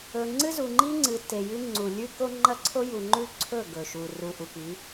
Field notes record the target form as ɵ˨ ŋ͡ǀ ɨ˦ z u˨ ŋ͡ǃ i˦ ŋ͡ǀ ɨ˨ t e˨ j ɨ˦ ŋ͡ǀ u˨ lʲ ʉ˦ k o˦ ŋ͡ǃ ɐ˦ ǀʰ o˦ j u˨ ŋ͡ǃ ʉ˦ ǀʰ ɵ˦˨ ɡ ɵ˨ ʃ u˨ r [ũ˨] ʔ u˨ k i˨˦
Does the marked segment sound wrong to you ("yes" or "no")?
yes